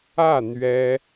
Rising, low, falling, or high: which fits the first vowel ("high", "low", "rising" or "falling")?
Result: falling